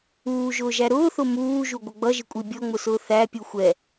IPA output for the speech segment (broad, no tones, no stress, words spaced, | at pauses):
uːʒʊːʒæ ɾʊːθʊ muːʒuɡʷə ɡ͡bʌʒɪkʷʼi bʲɔŋ͡mʊsʊː θæpʲu xʷɛ